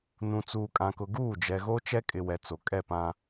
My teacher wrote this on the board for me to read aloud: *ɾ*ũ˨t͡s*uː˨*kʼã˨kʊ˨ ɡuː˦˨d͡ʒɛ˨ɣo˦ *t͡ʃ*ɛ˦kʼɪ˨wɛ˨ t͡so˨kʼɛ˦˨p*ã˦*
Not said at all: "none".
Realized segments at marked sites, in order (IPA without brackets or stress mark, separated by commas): n, uː˨, t͡ʃ, ã˨